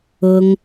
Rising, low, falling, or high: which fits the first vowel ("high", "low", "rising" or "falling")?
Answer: high